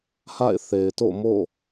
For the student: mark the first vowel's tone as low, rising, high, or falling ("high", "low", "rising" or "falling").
falling